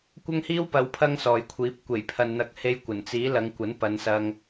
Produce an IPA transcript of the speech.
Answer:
kʷ ɐ˥ ŋ h iː˥ w p ɐ˨˧ w pʰ ɐ˥ ŋ s ɔː˨ j kʷʰ iː˨˥ p̚ kʷ e˨˩ j pʰ ɐ˨ n n̪ ɐ˨˥ k̚ h e˧ j kʷ ɐ˨˩ n t͡s iː˨˥ l ɐ˨˧ ŋ kʷ ɐ˨˥ n p ɐ˨˧ n s ɐ˧ ŋ

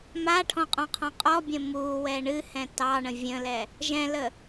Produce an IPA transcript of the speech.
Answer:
m a ʈʰ ɔ̃ qʼ ɔ̃ qʰ ɔ̃ qʼ ɔ bʲ ə̃ m uː w ɛ ɳ ɨ h ɛ̃ t ɑ ɳ ə̃ vʲ ə̃ l ɛ | ʒ ɛ̃ l ə

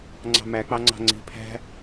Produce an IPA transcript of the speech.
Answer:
ŋ͡ǀ ɑ̤ m æ k͡p ɑ ŋ͡ǀ ɑ̤ ŋ͡ǀ i̤ pʰ æ̤

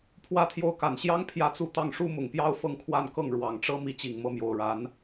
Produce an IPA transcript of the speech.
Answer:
pʰ w ä˥ t̪ʰ j o˥˩ ʊ̯ k a˨˩ n ɕ j ɑ˥ ŋ pʰ j ä˥˧ t͡s u˥˧ t̪ ɑ˥˩ ŋ ʂ u˥ m ʊ˨˩ ŋ p j ɑ˥ ʊ̯ f ɤ˥˧ ŋ kʰ w a˥˧ n k ɤ˥˩ ŋ ɻ w ɑ˨˩ ŋ ʈ͡ʂ ɤ˥ m i˧˥ t͡ɕ i˨˩ ŋ m ɤ˥˩ m j o˨˩ ʊ̯ ɻ a˧˥ n

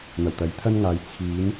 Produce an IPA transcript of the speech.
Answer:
n̪ ɐ˨˩ w t̪ ɐ˨˥ j t̪ʰ ɐ˥ n ŋ aː˨˧ j t͡sʰ iː˨˥ n

